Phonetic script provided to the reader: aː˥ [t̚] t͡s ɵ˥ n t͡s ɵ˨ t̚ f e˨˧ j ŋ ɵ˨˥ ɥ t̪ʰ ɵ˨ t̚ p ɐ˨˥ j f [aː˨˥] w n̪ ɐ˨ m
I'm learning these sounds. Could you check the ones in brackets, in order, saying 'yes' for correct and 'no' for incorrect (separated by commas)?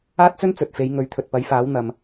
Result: yes, yes